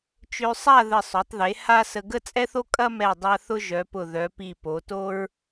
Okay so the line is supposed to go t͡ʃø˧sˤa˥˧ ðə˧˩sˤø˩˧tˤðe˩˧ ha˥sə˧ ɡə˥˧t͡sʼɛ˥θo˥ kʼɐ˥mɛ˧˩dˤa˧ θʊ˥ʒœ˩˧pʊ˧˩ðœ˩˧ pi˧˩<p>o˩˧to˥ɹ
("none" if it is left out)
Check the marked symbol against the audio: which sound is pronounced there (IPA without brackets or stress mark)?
p